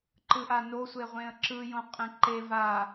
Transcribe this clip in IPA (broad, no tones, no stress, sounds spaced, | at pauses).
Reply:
ǃ ɯ ʔ a n o sʷ e ʁʷ ẽ ə̯ ǁ ɯ j õ qʼ ẽ ǃ e v a